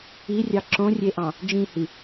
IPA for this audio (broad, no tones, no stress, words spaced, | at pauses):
irʲɑ ǁõrʲeʔɑ̃ | d͡ʒĩhi